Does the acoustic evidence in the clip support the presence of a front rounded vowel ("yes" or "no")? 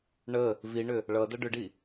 yes